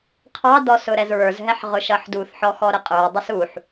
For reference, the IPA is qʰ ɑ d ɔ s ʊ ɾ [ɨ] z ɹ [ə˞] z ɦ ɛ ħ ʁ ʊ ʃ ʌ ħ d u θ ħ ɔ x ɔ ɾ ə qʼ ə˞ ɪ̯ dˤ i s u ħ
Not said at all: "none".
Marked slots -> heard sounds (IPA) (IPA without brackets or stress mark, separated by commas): ɛ, ə˞